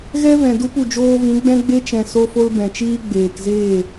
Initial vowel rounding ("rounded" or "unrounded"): unrounded